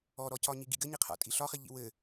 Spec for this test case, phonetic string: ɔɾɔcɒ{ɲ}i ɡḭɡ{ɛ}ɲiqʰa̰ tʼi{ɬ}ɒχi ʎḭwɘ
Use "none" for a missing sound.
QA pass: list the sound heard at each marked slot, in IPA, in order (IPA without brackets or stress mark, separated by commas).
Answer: ɲ, ɘ, ɬ